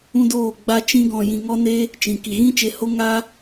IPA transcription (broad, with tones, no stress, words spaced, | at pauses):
ũ˦doː˦˨ ɡ͡ba˦t͡ʃĩ˦ɡɔ̃˧jĩ˧ ŋɔ˦ne˦ | t͡ʃĩ˨ ki˨ɣĩ˦t͡ʃe˧ho˦ ŋaː˦